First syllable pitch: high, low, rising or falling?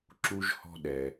high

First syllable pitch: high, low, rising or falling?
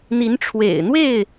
rising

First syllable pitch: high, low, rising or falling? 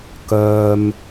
low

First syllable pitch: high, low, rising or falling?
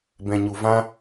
low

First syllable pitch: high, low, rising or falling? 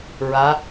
rising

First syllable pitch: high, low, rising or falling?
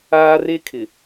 high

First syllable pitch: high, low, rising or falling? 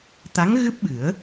rising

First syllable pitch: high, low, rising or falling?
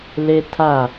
high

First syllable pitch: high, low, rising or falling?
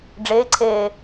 rising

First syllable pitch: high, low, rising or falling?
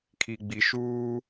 low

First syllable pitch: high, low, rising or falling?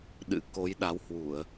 rising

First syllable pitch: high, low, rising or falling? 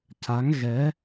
rising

